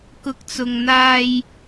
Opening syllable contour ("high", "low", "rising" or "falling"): low